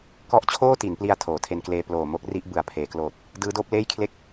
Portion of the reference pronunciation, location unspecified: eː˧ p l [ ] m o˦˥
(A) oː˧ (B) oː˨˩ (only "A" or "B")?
B